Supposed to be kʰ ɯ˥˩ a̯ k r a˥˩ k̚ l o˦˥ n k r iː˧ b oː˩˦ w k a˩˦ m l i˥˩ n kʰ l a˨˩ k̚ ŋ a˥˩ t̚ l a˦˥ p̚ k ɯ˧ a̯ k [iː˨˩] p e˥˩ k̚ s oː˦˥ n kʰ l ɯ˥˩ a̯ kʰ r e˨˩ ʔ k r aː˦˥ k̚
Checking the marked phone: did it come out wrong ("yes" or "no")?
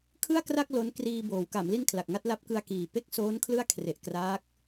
no